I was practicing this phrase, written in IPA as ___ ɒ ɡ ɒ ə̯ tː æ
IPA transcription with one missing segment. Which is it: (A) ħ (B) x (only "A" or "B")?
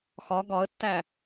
B